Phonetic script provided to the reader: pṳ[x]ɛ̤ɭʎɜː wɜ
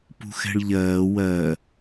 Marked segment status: correct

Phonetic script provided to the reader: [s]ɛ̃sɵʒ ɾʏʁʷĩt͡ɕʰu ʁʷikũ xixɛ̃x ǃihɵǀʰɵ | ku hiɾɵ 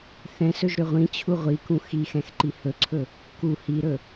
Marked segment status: incorrect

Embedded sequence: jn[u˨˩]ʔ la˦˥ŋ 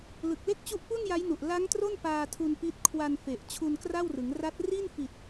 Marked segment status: correct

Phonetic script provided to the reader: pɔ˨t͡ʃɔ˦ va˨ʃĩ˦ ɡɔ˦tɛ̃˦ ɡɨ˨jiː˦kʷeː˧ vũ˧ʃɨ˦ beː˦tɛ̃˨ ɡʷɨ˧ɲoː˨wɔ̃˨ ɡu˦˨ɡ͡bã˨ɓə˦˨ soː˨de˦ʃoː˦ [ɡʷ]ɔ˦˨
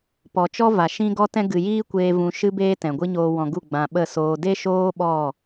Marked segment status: incorrect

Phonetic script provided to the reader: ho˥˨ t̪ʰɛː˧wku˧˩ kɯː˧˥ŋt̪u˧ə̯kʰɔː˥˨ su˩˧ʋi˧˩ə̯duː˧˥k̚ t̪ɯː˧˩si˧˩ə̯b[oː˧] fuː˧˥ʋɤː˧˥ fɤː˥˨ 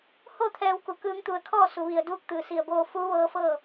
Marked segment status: correct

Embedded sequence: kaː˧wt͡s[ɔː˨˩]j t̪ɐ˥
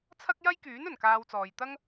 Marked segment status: incorrect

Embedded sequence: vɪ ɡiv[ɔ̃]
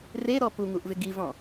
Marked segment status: correct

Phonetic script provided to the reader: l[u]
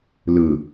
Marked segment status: incorrect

